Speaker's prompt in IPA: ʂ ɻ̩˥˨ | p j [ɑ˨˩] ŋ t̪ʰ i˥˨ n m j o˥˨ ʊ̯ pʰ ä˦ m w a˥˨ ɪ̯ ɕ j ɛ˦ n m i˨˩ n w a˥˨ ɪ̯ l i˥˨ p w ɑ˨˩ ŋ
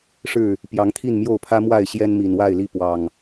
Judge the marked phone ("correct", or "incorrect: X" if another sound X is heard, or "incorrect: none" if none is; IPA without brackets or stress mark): incorrect: ɑ˨˦